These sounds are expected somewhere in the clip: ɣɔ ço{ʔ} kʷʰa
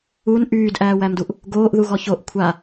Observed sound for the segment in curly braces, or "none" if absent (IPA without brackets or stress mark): ʔ